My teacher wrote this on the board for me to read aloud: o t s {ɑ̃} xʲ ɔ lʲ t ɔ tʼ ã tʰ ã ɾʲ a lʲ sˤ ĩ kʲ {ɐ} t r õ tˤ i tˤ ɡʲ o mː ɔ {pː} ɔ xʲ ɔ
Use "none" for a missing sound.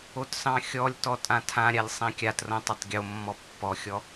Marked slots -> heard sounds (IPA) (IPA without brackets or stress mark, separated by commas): ɑ̃, a, pː